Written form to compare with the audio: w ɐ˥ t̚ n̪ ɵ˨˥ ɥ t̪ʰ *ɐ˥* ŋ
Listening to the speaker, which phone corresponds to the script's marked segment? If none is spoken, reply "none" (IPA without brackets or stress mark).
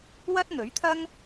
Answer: ɐ˥